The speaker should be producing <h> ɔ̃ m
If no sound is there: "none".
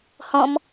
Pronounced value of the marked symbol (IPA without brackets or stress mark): h